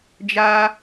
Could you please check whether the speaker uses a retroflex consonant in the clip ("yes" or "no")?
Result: no